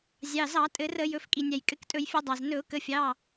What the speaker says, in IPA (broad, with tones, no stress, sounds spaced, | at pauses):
zʲ ɑ˩˧˩ z ɑ˧˩˧ tʼ ɘ˧˩˧ r ə˧˩˧ j ɵ˩˧˩ f kʼ i˩ nʲ æ˩ j kʼ ɘ˩˧˩ k tʼ ɵ˧˩˧ j fʲ ɵ˧˩˧ dˤ ɑ˩ z n ɵ˧˩˧ ʊ̯ k ə˩˧˩ fʲ ɑ˩˧˩